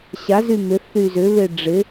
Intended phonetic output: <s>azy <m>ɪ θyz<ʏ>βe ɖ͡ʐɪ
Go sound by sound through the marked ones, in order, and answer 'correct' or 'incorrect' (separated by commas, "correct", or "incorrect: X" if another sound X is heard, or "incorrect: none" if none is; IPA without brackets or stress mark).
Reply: incorrect: ɕ, correct, correct